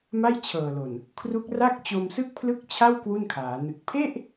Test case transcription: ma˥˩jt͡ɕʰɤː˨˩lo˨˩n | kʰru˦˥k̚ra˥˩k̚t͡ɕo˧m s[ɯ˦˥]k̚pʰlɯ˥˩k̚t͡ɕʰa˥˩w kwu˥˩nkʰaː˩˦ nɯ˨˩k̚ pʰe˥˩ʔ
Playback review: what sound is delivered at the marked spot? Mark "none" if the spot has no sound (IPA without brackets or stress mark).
ɯ˥˩